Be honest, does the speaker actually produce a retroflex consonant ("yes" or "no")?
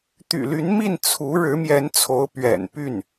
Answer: yes